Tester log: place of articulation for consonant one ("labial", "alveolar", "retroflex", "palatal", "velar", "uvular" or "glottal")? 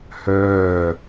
glottal